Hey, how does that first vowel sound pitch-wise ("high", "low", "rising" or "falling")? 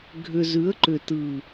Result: low